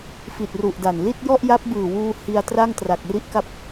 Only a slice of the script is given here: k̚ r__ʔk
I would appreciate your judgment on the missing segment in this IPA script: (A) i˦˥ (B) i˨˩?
A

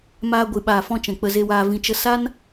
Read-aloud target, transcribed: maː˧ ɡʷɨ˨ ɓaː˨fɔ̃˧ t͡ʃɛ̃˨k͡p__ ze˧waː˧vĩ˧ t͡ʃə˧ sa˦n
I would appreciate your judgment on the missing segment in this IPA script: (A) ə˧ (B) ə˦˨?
A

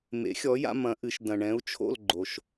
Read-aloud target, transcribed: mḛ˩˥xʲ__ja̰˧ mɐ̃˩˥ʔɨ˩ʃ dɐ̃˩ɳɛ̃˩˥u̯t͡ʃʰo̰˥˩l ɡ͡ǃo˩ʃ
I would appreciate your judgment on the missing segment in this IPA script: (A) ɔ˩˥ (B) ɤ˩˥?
A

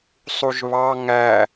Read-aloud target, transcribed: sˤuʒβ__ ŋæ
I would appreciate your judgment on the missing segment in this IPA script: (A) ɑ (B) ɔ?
A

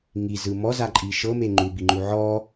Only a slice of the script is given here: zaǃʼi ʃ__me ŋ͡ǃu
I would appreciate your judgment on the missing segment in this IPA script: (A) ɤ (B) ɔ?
A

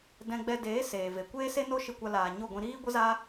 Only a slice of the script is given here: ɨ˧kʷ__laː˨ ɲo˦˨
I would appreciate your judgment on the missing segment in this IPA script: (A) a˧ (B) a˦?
A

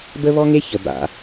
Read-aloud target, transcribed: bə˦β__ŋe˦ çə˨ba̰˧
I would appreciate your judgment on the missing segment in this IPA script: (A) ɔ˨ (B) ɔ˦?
B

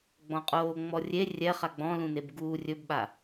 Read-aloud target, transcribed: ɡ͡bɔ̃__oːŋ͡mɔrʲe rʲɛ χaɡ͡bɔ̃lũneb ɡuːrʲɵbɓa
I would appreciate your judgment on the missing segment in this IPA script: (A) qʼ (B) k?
A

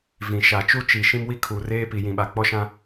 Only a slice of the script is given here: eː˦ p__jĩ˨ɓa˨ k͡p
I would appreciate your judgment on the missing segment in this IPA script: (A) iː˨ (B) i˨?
B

